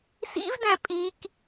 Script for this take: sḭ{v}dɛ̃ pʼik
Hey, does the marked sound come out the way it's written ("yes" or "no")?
yes